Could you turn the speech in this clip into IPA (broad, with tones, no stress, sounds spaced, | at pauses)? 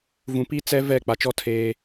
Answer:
v ũ˨ p i˦ t͡s ɛ˦ v ɛ˦˨ k͡p a˨ t͡ʃ ɔ˦ tʰ eː˦